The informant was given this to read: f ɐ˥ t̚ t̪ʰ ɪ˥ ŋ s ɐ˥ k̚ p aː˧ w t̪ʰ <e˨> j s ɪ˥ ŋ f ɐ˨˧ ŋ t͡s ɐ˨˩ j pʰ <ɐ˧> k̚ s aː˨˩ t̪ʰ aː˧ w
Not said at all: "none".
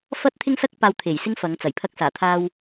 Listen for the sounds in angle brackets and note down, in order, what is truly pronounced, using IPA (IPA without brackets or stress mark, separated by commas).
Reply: e˨˩, ɐ˧